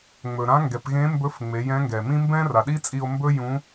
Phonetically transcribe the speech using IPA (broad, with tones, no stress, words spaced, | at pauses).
ŋ͡mɵ˩ɾã˧˥ŋɡɛ˩˧p ɣẽ˧˥mbɵ˧˥fŋ͡me˩˧ jɛ̃˧˥ŋɡɛ˩mĩ˥ mbɛ̃˥ra˩ɗi˥t͡sʼi˧o̯ mbɵ˥jũ˧˥